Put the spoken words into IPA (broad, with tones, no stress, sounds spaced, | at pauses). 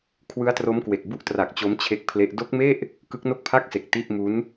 kʰ w ɯ˦˥ a̯ t r o˦˥ m k w e˨˩ k̚ b u˥˩ ʔ t r a˨˩ k̚ t͡ɕ o˦˥ m t͡ɕʰ e˦˥ k̚ pʰ l e˦˥ ʔ d o˦˥ k̚ m e˥˩ ʔ | k ɯ˦˥ k̚ n o˥˩ k̚ pʰ a˥˩ k̚ s e˨˩ k̚ t i˥˩ ʔ m u˦˥ n